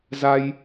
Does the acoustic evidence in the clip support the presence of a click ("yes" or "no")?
no